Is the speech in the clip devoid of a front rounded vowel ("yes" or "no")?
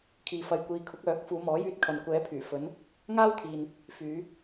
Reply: no